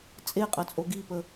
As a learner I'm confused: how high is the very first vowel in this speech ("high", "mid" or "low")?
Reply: mid